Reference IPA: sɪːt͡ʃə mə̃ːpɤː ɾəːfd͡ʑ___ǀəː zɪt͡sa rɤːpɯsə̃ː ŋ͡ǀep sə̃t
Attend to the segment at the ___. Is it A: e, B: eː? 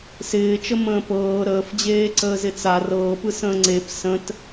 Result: B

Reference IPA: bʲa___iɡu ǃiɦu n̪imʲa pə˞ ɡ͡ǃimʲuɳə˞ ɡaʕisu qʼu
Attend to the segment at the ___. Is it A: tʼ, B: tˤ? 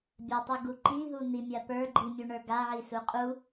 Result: B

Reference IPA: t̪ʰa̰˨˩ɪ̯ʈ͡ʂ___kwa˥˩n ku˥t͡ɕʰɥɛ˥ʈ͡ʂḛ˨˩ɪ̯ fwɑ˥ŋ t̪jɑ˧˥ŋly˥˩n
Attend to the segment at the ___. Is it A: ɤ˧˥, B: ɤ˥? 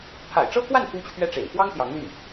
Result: B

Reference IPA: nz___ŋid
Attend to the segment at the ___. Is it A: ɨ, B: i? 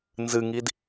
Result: A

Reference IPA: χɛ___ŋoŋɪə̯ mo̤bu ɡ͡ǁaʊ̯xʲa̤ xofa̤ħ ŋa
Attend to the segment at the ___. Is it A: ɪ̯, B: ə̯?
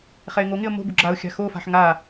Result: A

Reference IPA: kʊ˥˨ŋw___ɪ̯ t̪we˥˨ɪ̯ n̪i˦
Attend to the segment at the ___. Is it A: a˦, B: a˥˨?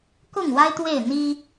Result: A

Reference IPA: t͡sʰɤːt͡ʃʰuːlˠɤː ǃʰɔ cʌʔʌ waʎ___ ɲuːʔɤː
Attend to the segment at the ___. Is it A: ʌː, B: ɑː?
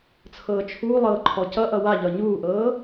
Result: A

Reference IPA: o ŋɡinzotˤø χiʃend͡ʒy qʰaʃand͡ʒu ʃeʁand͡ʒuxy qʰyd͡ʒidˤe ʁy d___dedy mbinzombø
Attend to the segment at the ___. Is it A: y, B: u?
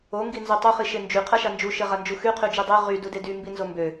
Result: B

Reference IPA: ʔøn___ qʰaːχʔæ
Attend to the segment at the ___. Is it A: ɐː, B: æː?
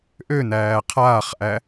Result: B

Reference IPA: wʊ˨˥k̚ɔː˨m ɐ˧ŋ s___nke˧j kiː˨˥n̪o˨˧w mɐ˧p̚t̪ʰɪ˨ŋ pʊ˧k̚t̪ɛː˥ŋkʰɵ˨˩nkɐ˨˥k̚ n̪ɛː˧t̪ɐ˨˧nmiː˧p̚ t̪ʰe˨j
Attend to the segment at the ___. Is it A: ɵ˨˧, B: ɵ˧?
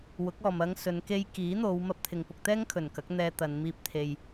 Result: A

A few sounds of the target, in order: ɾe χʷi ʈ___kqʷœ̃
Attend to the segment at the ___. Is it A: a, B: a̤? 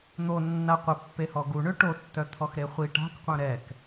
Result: B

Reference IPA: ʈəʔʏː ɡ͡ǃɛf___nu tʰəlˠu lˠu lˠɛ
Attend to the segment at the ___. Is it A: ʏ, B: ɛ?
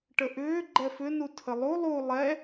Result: A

